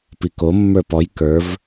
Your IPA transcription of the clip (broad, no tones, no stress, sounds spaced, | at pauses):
p i k o mː ə˞ p ɔ j k ə˞ v